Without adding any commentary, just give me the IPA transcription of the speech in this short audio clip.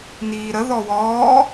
n iː ɾ ə ð ɔ w ɔː

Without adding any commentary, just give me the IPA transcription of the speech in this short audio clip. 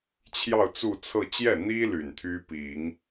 t͡ɕʰ j ɑ˥˧ ʊ̯ t͡s u˥˧ t͡sʰ ɤ˥˧ t͡ɕ j ɛ˥˩ n̪ i˥ l y˨˩ n t̪ʰ y˥ p i˨˩˦ ŋ

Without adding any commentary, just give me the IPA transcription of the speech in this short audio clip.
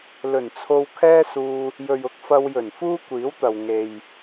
l ɵ˨˩ n t͡sʰ o˧ w kʰ ɛː˥ s uː˧ | j ɵ˨ ɥ ʊ˨˥ k̚ f ɐ˧ w j ɵ˨˩ n f uː˥ kʷ iː˨˥ w t̪ ɐ˨ w ŋ e˨ j

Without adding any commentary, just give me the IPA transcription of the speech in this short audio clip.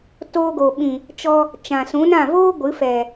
t oː˧ ɡ o˨ ɓ ĩ˨ | t͡ʃ ɔ˧ | t͡ʃ ã˨ s ũ˨˦ n ã˦˨ v oː˦ ɡʷ ɨ˨˦ f ɛ˨

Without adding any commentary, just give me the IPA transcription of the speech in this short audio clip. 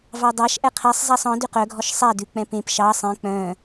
v ɑ dˤ ɑ ʃ ʔ ɛ qʰ ɛ sˤ zˤ æ sˤ ɔ̃ d y q œ ɡʱ ɔ ʃ sˤ æ d ʉ k͡p ɛ̃ p ẽ p ʃ ɑ sˤ ẽ k͡p œ̃

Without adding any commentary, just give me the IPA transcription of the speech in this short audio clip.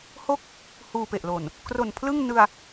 h o˥˩ k̚ | h uː˧ p e˨˩ ʔ l o˨˩ n | k r o˨˩ n pʰ l ɯ˥˩ ŋ n ɯ˧ a̯

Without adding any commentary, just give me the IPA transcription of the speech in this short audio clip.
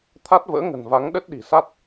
t̪ʰ a˦˥ t̚ v ə̰ː˧˥ ŋ ə̤˨˩ n v a˨˦ ŋ ɗ ə˦˥ t̚ ɗ i̤˨˩ s a˦˥ t̚

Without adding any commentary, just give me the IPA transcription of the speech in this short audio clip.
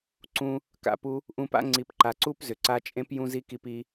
ǀ ũ˧ | k a̰˧ p u˧ | ʔ ũ˧ p a̰˦ ŋ͡ǀ i˨ p ǃ a˨ ǀ u˦ p z ʏ˨ ǀ a˦ t͡ʃʼ ẽ˦ p j ũ˦ z i˦ k i˦ p i˦

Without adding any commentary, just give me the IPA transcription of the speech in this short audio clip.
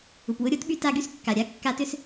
u˩ p w ʊ˧˥ ɾʲ o˧˥ t ɓ y˧˥ t a˧˥ ɡ y˧˥ s kː a˩ ɾʲ a˧˥ kː a˧˥ t ʏ˧˥ s

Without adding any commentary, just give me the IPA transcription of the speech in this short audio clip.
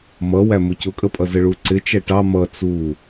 m ʌ w æ m ʊ c ʊ kʼ ə pʼ ʌ z ə ɭ u ǀ ɪ t͡ʃ æ ʈ ɑ m ʌ t͡s u

